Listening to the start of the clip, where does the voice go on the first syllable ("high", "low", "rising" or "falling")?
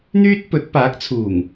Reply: high